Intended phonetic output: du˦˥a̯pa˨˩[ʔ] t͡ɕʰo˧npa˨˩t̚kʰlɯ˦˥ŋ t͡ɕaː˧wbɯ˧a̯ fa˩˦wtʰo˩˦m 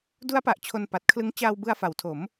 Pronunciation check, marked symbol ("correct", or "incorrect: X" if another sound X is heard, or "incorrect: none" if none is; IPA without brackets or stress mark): correct